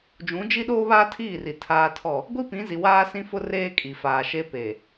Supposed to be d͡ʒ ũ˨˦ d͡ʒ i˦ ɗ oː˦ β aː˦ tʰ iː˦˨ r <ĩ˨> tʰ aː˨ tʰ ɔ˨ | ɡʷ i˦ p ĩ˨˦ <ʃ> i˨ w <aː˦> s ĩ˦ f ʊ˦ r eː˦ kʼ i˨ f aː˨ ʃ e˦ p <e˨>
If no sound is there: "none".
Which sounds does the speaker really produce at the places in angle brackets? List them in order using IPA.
i˨, z, aː˦, e˨

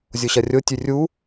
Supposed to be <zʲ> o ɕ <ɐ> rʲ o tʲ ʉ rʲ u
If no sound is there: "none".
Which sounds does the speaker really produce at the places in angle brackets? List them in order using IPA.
zʲ, ɐ

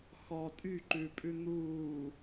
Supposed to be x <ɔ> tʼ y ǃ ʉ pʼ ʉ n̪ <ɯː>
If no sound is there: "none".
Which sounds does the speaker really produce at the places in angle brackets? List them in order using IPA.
ɔ, uː

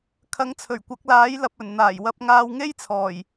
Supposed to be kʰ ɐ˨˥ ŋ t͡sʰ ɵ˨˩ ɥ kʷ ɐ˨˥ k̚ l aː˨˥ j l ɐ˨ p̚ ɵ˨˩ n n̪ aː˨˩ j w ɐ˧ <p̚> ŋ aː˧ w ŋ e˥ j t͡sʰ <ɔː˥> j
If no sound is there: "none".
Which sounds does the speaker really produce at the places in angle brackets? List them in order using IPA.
p̚, ɔː˨˩

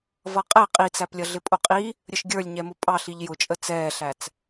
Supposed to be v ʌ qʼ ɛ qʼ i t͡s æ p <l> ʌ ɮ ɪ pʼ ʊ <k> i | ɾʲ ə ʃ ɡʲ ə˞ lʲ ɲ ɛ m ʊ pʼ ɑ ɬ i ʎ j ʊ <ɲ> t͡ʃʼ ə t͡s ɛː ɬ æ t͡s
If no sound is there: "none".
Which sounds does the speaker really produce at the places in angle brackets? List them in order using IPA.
lʲ, qʼ, none

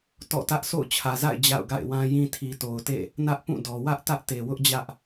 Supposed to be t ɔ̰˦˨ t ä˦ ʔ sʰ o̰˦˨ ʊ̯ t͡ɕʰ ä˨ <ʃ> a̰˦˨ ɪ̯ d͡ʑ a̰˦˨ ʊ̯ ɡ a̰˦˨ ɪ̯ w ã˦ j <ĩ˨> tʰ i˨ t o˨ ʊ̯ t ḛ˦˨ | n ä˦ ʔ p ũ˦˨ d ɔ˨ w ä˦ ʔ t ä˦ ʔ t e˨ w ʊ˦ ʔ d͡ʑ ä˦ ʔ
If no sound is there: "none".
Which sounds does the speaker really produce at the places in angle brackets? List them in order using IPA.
z, ĩ˦

